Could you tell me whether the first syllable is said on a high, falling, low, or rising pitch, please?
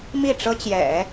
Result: falling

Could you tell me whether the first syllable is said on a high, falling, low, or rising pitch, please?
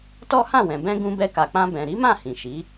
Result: high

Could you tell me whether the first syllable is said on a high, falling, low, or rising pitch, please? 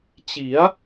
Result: rising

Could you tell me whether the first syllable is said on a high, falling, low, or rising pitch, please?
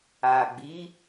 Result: low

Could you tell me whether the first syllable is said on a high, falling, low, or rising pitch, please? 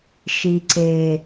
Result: low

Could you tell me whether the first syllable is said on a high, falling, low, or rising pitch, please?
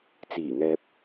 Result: low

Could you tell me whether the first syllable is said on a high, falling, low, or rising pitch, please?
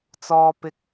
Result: low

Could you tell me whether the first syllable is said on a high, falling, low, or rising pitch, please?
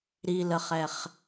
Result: low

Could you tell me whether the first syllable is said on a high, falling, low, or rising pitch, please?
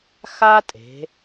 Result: high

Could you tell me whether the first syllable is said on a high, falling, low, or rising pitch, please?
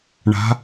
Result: rising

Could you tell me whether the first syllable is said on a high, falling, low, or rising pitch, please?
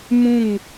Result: falling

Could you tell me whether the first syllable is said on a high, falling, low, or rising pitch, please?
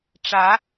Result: rising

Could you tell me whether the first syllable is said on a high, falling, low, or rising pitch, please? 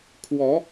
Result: rising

